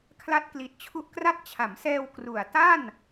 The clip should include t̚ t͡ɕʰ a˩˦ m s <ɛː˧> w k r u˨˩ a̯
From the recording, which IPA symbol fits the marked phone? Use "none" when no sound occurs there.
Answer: ɛː˧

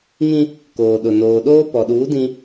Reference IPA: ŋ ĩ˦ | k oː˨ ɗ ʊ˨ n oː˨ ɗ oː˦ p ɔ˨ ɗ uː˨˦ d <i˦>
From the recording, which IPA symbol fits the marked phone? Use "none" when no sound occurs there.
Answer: ĩ˦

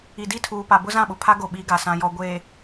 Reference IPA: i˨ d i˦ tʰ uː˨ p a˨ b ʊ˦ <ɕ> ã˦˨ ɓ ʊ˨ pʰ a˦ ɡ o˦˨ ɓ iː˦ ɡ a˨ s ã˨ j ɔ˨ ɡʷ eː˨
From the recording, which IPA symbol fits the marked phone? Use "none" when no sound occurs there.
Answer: z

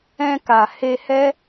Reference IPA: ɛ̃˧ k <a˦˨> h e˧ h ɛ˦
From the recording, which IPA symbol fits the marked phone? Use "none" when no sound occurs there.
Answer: a˨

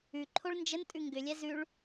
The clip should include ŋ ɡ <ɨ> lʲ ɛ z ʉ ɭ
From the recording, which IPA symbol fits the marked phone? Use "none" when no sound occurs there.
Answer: ʏ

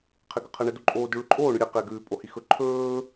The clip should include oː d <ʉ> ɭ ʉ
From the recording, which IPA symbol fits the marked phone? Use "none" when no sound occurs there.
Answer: ʉ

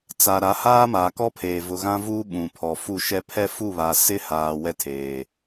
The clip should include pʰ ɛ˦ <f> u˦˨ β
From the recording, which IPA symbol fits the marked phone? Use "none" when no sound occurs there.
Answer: f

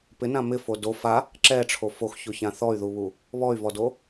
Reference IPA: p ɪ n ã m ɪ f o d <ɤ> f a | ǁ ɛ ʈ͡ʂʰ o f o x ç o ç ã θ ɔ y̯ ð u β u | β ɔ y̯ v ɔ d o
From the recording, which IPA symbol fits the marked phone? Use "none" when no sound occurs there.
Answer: o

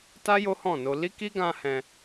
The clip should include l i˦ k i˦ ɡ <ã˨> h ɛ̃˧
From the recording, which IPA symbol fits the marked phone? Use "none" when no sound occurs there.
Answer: ã˧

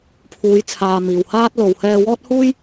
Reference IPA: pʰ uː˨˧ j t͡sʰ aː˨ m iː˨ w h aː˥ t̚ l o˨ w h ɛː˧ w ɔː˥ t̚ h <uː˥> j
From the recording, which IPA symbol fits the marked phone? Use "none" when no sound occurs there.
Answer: uː˥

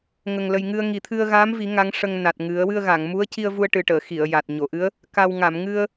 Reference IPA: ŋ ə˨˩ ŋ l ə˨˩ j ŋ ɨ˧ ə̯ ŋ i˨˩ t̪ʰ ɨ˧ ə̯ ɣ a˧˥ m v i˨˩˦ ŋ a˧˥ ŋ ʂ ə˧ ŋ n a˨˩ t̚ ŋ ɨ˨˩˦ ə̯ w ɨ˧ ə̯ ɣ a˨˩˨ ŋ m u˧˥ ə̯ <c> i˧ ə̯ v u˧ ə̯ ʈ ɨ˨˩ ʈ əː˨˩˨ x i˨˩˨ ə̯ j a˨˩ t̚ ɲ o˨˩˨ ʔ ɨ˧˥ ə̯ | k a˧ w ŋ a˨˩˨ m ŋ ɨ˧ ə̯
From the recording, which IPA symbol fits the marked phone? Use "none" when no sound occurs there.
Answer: c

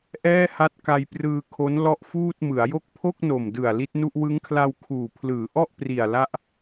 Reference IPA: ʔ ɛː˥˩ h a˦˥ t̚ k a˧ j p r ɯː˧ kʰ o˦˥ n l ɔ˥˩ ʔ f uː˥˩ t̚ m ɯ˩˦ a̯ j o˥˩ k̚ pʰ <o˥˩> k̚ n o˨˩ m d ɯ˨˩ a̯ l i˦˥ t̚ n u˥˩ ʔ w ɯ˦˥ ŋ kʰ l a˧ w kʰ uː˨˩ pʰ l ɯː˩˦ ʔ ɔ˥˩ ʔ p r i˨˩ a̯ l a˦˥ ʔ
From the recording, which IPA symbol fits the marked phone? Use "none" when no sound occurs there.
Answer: o˥˩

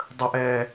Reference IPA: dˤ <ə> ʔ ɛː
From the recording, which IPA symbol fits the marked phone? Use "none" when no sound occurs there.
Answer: ə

